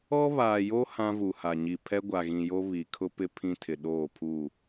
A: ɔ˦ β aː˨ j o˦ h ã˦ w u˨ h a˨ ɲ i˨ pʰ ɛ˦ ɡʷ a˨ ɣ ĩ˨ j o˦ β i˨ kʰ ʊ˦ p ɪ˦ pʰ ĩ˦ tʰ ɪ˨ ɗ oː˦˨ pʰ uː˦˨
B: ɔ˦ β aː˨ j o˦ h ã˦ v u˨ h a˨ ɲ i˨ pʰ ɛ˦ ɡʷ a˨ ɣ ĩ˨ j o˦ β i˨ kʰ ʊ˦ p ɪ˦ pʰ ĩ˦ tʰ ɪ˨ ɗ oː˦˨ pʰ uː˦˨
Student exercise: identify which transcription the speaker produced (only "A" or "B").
B